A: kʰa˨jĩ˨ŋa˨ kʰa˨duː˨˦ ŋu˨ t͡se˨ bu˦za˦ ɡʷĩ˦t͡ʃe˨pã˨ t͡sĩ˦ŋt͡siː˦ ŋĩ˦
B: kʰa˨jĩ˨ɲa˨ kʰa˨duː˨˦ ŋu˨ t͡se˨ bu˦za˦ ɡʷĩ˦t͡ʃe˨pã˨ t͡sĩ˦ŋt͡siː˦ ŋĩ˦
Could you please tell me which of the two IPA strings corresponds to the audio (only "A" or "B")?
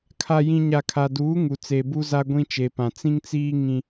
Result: B